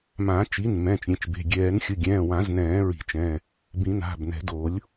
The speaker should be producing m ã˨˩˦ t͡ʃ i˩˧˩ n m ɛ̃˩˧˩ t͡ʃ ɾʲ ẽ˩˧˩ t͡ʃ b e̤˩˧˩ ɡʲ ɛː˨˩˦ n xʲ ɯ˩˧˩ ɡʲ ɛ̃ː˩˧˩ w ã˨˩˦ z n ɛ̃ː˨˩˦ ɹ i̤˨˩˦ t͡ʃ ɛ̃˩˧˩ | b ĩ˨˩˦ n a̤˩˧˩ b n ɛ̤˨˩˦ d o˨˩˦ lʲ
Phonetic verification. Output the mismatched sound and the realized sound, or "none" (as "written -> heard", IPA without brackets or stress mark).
none